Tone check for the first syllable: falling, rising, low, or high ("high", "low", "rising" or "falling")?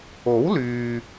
rising